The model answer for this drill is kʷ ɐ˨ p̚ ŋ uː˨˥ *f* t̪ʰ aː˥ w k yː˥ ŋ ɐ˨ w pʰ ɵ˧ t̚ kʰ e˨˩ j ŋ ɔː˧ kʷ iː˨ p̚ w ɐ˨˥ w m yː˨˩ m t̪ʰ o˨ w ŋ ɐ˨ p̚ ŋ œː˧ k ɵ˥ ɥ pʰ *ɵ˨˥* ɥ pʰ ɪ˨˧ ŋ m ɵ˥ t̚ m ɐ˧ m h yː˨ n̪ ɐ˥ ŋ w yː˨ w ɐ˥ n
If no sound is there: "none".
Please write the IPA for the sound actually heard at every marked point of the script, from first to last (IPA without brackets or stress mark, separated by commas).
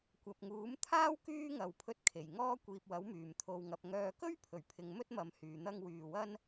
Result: m, ɵ˨˩